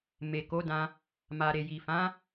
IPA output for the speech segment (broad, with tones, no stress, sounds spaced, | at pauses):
m e˨ k o˨˦ d ã˧ | m a˨ ɾ e˨ j i˨ f ã˨˦